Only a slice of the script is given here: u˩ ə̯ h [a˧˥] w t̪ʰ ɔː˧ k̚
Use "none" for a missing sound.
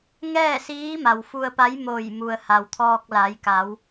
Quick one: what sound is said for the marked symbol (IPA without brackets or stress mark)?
a˩